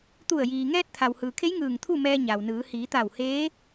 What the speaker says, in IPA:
t̪ u˧˩ ə̯ j iː˩ ŋ ɛː˧ t̚ t̪ʰ a˩ w h ɯː˩ kʰ e˧˥ j ŋ ɯː˧˩ ŋ t̪ʰ u˥˨ m ɛː˧ ɲ a˩ w n ɯː˩˧ h iː˩˧ t̪ a˧˩ w h eː˧˥

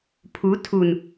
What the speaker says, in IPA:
pʰ u˨˦ tʰ u˨ n

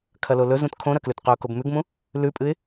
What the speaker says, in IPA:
kʰ ɐ l o l ɵ z ũ t kʰ õ ɾ ɐ k l ʉ t q ɵ ʊ̯ k o b m ʉ ɡ m ũ | l ʉ pʼ ɨ ɪ̯

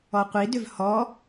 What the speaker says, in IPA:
ɔ qʷ i d ʏ v h ɔ

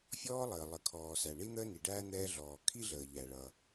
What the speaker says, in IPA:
fʲ ɔː˥ lˠ əː˩ lˠ ə˩ kʰ ɔː˩ s æ˩ ɳ i˥ n̪ əː˥ n i˩ ɖ æ˥ n̪ ɛː˧ ɮ ɔː˩ kʰ i˥ ɮ əː˩ ʎ æ˩ ɭ ʌ˩

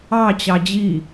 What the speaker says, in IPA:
ɑ t͡ɕ ɑ d͡ʑ i

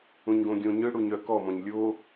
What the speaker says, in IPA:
ũ ɲ ɡ õ ɡʲ õ ɲ ɯ ɽ u ɲ œ k ɔ m ɔ̃ ɲ lʲ o

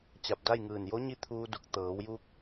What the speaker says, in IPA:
t͡ɕ a˧˩ p̚ d a˥˨ j ŋ ɯː˧˩ n j o˧˥ ɲ i˧˥ t̪ʰ uː˧ d u˧˩ k̚ t̪ ɤː˩˧ w j uː˧ k̚

